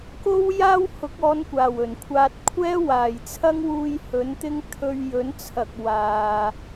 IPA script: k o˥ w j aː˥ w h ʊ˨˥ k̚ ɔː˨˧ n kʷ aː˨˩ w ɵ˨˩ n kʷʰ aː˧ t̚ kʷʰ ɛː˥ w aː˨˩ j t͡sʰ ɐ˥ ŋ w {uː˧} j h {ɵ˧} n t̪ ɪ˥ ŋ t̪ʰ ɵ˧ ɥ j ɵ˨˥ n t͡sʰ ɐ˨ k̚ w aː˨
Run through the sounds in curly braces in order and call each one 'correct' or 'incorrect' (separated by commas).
correct, incorrect